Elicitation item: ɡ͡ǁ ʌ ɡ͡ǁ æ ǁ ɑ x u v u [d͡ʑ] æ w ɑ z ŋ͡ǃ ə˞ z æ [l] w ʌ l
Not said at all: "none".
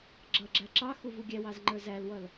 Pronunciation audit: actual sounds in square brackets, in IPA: ɡʲ, l

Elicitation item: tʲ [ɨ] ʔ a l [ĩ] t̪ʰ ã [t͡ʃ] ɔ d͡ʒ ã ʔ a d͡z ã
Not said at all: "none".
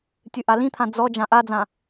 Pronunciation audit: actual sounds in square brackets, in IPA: ɨ, ĩ, d͡z

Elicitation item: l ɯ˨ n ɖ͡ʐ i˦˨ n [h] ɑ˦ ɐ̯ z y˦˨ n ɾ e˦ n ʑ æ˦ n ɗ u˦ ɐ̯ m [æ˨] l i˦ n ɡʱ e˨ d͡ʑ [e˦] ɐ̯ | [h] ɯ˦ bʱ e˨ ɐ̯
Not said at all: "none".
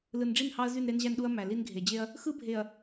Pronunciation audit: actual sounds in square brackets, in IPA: h, æ˨, e˦, x

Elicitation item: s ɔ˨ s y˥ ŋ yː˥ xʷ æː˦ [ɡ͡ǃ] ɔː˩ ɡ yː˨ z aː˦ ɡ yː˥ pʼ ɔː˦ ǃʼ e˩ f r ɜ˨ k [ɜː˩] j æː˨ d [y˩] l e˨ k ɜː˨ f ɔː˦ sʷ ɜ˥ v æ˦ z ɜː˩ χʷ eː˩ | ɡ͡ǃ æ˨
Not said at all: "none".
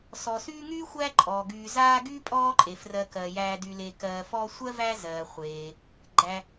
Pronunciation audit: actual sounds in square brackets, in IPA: ǃʼ, ɜː˩, y˨

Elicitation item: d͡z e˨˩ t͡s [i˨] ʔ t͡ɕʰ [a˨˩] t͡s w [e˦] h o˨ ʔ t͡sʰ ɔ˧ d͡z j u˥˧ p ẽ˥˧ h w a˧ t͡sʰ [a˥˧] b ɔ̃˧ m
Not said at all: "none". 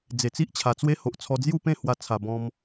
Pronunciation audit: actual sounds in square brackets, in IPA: i˦, a˨˩, e˦, a˨˩

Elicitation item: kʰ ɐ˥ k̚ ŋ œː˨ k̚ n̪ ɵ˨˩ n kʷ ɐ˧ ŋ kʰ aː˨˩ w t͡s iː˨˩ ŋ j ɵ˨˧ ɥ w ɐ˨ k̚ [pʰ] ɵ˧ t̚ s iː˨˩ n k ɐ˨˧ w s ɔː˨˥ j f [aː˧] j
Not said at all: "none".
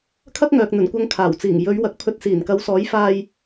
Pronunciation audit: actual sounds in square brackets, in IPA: pʰ, aː˧

